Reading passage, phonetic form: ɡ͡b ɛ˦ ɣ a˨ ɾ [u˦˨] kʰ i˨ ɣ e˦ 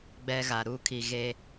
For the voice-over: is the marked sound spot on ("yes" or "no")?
yes